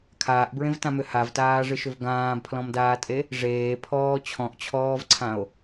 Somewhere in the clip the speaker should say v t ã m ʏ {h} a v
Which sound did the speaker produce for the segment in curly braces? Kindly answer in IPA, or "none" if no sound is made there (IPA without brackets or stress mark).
h